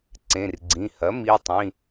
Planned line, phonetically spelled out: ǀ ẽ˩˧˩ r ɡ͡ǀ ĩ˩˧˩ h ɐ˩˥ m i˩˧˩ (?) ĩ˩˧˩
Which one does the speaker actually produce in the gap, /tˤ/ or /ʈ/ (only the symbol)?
tˤ